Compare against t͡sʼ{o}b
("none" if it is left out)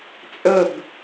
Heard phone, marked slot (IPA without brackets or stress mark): ɵ